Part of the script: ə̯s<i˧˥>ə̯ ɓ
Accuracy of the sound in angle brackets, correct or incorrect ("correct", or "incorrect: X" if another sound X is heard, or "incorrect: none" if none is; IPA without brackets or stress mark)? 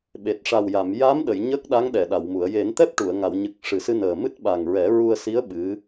correct